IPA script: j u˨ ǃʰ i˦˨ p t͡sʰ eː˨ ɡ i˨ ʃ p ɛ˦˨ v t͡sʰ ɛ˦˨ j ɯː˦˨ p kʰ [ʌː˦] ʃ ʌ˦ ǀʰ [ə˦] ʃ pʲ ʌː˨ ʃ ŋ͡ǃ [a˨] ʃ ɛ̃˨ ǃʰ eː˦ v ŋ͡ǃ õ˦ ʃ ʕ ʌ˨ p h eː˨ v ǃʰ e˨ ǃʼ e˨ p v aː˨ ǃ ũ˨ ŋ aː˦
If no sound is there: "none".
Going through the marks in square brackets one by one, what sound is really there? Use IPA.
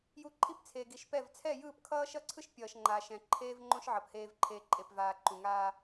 ʌː˦, ɯ˦, aː˨

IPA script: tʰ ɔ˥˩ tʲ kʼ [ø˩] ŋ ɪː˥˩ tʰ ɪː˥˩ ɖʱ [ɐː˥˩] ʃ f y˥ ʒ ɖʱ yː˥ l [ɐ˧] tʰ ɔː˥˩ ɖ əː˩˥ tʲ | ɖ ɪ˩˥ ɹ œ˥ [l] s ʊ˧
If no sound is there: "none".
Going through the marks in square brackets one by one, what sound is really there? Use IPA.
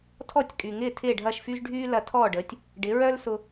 y˩, ɐː˥˩, ɐ˧, l

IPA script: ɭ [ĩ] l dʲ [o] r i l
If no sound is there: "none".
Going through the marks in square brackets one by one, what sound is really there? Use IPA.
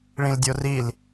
ĩ, o

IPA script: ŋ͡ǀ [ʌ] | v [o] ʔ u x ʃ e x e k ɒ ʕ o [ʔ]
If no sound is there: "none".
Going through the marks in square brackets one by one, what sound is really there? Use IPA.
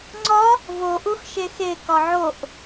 ɒ, o, ʔ

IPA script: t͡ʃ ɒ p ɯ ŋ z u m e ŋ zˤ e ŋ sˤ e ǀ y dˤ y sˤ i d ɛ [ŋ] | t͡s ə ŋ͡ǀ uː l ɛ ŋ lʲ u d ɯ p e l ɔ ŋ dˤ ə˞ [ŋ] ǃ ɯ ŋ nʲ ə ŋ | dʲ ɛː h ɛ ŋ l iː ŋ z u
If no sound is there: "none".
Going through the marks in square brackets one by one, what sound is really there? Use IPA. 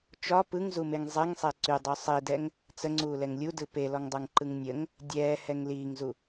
ŋ, ŋ

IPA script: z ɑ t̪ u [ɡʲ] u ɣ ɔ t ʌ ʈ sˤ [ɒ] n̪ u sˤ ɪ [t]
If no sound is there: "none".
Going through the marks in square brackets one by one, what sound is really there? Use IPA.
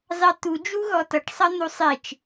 d͡ʒ, ʌ, t͡ʃ

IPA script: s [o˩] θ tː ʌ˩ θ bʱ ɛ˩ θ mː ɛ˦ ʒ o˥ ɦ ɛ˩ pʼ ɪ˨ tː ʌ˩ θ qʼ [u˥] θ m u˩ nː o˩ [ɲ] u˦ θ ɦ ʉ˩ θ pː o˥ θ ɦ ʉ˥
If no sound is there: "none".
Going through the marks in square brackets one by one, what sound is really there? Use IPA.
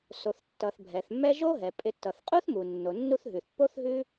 o˩, u˥, nː

